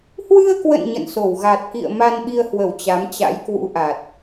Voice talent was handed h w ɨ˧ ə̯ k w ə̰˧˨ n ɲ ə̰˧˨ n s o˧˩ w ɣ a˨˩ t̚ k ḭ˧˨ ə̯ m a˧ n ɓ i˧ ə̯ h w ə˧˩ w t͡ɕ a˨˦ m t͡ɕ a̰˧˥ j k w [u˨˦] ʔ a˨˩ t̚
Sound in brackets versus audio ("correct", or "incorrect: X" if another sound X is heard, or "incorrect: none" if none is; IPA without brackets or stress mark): incorrect: ṵ˧˥